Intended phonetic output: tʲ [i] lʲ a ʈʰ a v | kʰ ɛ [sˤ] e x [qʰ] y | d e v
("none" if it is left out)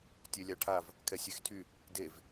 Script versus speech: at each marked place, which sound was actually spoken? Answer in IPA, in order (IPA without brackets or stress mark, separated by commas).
e, sʲ, tʰ